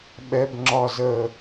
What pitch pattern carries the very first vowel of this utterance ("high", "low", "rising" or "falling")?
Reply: high